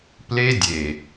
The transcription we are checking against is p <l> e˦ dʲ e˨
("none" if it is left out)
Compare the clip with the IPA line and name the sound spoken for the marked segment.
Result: l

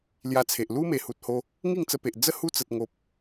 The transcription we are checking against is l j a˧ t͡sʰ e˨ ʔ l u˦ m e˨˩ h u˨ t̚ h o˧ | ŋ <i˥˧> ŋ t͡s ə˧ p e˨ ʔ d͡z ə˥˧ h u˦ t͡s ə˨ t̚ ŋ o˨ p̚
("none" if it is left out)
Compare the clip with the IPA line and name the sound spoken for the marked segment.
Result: i˥˧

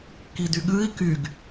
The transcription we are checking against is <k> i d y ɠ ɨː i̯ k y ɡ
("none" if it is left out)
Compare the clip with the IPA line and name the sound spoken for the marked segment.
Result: k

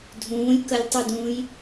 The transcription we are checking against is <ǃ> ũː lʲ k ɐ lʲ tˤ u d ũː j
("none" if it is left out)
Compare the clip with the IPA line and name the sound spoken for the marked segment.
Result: dʱ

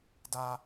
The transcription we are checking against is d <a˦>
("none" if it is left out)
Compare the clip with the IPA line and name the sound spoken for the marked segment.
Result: a˦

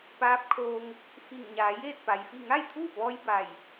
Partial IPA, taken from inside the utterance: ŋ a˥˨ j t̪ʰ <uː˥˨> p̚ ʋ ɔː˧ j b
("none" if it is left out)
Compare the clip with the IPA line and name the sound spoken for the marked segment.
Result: uː˥˨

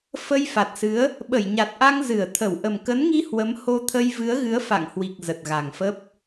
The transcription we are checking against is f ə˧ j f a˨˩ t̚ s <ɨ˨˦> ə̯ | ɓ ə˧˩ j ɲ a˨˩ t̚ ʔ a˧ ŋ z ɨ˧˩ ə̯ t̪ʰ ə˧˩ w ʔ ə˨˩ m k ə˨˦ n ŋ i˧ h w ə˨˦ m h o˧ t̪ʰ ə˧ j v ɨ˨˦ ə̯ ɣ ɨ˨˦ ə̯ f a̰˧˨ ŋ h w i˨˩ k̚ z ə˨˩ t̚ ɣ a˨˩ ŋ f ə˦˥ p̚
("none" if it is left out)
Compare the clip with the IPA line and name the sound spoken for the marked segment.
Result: ɨ˨˦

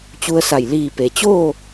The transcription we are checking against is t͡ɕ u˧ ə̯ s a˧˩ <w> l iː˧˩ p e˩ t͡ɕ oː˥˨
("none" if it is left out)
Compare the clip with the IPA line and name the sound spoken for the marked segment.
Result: j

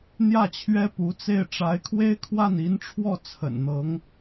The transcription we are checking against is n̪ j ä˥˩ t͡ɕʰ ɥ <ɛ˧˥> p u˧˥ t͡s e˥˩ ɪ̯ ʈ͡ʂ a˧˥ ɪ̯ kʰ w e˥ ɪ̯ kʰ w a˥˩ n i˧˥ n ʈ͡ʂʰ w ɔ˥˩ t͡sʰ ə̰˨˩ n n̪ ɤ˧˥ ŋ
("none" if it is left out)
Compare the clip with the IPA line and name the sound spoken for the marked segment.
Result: ɛ˥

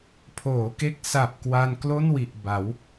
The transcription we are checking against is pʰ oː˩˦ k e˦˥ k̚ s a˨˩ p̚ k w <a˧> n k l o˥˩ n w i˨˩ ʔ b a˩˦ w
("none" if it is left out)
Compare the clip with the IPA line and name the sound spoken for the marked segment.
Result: a˧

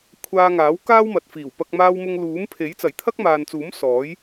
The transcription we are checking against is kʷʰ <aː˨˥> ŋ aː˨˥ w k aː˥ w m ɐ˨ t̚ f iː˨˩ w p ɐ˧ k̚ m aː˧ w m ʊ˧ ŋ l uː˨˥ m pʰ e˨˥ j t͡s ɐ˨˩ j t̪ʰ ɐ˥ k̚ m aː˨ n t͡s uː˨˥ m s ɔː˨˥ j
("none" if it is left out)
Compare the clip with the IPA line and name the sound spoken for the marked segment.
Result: aː˧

